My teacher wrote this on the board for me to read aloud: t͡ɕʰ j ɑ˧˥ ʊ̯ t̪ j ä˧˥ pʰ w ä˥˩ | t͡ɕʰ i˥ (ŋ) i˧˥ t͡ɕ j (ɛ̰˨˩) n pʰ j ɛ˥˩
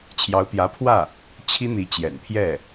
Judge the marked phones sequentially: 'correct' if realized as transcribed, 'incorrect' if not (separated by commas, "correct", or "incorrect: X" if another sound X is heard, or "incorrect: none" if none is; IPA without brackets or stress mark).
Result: incorrect: n̪, correct